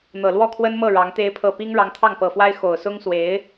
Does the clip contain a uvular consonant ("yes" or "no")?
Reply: no